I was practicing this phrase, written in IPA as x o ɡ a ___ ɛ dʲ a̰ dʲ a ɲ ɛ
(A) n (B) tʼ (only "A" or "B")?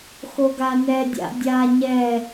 A